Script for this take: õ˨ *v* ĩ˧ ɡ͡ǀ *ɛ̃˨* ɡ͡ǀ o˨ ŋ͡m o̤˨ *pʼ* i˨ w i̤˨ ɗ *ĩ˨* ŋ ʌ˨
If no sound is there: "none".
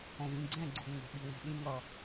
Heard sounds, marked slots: v, ɛ̃˦˨, ɓ, ĩ˧

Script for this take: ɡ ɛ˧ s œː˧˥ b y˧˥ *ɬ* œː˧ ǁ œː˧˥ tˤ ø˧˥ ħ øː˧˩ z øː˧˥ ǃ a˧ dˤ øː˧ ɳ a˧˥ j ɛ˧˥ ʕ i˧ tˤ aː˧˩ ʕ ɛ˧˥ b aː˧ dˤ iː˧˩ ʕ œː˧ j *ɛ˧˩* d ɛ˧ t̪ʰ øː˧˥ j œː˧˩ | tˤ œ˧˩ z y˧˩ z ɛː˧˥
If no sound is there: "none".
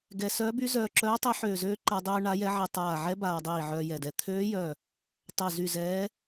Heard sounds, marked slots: z, ɛ˧˩

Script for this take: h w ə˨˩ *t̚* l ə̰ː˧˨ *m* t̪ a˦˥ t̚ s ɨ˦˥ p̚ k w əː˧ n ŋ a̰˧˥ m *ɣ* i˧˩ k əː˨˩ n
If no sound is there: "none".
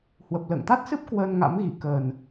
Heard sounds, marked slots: p̚, ŋ, ɣ

